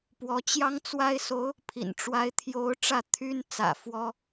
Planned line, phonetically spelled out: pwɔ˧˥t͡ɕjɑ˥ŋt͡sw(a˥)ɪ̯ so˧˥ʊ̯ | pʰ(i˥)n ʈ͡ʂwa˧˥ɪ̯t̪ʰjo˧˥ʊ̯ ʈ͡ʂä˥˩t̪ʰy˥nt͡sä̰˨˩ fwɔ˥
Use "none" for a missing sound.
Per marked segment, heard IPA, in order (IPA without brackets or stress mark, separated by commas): a˥, ḭ˨˩